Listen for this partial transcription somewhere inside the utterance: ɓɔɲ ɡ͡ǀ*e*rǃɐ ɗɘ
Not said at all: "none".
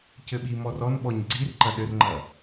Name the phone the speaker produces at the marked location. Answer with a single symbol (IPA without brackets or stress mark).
i